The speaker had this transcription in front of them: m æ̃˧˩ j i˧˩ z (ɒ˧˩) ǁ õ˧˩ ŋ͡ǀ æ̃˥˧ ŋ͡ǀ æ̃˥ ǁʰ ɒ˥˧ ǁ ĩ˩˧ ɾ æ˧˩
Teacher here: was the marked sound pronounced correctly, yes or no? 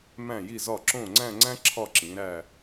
yes